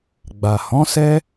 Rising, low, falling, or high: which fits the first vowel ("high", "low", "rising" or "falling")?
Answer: low